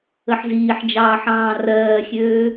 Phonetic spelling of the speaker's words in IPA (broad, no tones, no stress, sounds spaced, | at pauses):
ə ħ z iː ħ d͡ʒ ɑː ħ ɑ̃ː r ɜː xʲ øː